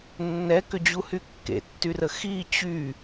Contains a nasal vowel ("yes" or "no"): no